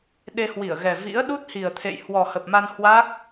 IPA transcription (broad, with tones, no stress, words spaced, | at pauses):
ɗe˧hwi˧˩ə̯ɣɛ˨˩ vḭ˧˥ə̯ ɗu˦˥t̚hi˨˩ə̯t̪ʰḛ˧˨j hwɔ˨˩hə˨˩p̚ma˧n hwa˦˥k̚